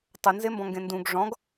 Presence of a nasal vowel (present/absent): present